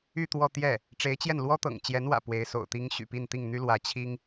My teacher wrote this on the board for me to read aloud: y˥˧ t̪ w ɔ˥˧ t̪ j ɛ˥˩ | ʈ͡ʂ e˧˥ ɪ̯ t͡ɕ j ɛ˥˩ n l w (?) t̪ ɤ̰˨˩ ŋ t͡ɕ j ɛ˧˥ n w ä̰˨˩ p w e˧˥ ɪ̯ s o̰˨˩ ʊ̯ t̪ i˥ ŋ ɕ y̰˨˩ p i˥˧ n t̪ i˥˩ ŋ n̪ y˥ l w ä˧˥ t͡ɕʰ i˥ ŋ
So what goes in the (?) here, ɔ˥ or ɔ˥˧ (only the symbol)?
ɔ˥